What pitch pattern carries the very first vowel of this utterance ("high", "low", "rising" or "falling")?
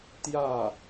falling